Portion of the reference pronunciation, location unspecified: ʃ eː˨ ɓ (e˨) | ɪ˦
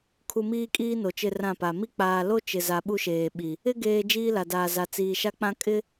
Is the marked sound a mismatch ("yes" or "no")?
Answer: yes